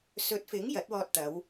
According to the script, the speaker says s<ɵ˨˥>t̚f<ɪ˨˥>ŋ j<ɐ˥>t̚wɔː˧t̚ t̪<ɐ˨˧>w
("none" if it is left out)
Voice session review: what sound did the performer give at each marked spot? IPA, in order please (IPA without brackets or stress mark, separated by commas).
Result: ɵ˨˥, ɪ˨˥, ɐ˨˥, ɐ˨˧